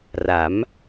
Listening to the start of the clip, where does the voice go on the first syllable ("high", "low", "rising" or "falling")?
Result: rising